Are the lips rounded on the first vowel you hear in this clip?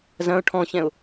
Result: no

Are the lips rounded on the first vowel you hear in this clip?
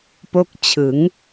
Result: yes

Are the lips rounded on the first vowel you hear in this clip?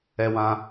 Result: no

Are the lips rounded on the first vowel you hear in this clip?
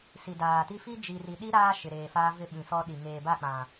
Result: no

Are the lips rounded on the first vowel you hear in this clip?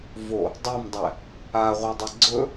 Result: yes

